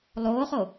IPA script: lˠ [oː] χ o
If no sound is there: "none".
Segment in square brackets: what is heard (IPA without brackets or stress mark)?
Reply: oː